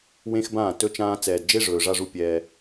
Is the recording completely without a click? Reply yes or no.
yes